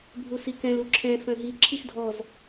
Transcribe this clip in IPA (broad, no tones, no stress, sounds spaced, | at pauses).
bʱ u s i k ɛ̃ l u ǁʰ ɛ̃ f œ̃ ɦ i ǁʰ i x dʱ ɔ z